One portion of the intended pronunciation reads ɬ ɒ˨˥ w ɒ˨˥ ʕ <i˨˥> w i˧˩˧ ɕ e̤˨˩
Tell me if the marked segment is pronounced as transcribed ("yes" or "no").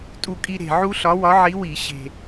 yes